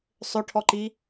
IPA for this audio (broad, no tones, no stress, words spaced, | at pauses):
sˤøʈʰɔǃi